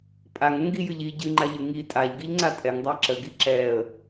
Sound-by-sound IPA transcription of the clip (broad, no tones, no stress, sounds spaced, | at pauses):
pʼ a ŋ ə ŋ ɡ i j ɨ ʎ i ɟ ɨ ŋ͡ǃ a ʎ ɨ ŋ i tʼ a ʎ ɡ i ʎ ŋ͡ǀ a tʼ ɛ ŋ dˤ a ǁ ə ɡ i ǁ ɛ ə̯